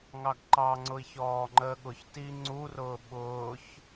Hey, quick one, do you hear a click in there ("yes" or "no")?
yes